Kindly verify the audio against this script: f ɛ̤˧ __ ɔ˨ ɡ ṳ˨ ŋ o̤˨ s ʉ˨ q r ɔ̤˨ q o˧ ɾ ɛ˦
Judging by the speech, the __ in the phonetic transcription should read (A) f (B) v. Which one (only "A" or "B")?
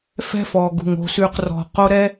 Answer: A